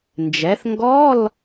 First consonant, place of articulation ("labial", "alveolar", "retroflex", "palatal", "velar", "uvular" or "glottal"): alveolar